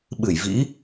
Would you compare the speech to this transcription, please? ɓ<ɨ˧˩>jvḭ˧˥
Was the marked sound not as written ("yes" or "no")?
no